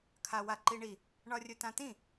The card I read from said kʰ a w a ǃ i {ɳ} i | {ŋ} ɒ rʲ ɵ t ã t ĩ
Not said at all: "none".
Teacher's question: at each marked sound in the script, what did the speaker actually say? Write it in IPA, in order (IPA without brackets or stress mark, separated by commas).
ɳ, ɳ